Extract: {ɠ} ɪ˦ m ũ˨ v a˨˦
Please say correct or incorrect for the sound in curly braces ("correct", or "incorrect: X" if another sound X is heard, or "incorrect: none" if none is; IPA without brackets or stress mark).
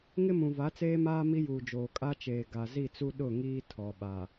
incorrect: ŋ